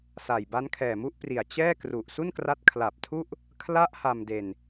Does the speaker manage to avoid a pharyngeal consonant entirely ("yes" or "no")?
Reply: yes